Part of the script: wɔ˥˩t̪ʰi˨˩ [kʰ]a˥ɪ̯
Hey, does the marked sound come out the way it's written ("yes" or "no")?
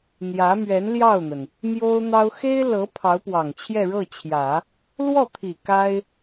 no